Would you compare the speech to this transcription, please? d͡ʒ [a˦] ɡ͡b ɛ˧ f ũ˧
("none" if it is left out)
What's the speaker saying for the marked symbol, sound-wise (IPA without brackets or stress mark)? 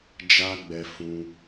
a˦